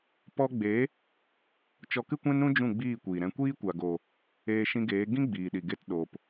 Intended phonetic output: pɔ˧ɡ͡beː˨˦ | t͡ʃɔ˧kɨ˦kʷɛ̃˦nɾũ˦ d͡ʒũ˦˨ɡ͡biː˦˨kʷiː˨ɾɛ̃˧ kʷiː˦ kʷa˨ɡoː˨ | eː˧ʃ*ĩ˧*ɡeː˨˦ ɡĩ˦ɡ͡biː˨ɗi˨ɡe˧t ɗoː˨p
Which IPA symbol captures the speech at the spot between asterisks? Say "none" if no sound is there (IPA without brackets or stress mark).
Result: ĩ˧